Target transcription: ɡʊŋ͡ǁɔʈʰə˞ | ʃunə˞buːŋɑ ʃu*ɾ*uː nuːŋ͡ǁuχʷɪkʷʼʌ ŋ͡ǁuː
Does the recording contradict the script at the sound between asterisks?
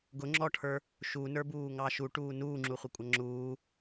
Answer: yes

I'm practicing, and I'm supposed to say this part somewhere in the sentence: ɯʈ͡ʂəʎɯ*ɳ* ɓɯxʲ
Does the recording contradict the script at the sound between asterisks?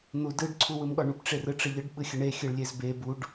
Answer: yes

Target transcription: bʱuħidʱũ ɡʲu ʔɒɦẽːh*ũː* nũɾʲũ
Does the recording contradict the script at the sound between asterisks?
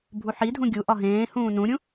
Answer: no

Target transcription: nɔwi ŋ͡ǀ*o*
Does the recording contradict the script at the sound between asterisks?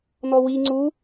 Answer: yes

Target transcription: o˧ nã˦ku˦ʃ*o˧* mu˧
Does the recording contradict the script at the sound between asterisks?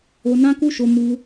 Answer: no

